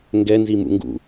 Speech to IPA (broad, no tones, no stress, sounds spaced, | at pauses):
ŋ ɡ ɛ n z i m ṵ ŋ ɡ ṵ